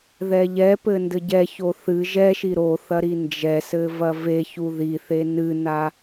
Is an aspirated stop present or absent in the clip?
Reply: absent